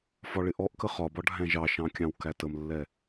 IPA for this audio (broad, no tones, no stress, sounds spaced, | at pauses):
f ɒ ɭ ɪ ʔ ɔ ʔ k ə χ ɒ b ɒ ɖʱ æ̃ ʒ ɑ ʃ ɑ̃ kʲ ɑ̃ w k æ t ə m lː ɛ